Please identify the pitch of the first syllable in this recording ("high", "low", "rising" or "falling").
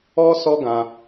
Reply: high